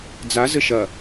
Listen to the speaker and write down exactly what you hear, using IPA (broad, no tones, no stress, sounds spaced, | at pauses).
d͡z a z ɘ ʃ ɐ